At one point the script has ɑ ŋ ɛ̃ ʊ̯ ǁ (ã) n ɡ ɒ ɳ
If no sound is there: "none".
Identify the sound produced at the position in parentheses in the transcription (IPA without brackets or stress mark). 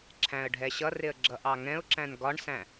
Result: æ̃